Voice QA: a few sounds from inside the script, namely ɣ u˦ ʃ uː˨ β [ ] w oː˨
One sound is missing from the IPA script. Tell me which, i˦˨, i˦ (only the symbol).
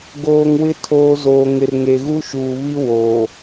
i˦